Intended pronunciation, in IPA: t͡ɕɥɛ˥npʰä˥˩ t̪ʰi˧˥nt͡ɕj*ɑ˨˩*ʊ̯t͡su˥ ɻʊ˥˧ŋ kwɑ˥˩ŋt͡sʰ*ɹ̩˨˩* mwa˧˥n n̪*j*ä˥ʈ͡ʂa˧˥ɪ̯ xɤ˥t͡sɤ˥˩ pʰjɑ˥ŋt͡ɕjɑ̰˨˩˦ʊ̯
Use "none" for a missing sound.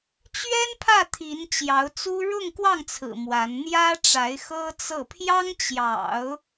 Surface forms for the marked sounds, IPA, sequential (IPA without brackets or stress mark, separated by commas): ɑ˧˥, ɹ̩˨˩, j